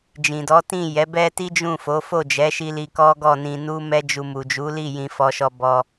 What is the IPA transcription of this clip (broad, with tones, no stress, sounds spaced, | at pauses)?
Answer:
d͡ʒ ĩ˨ d ɔ˨˦ t ĩ˦˨ j ɛ˨˦ b ɛ˦ t i˦ d͡ʒ ũ˦˨ f o˨˦ f o˦˨ d͡ʒ ɛ˨˦ ʃ i˧ l i˧ k ɔ˦ ɡ ɔ˦˨ n ĩ˧ n u˦ m ɛ˦ d͡ʒ u˧ m u˨ d͡ʒ u˨˦ l i˦˨ j ĩ˧ f ɔ˧ ʃ ɔ˧ b ɔ˧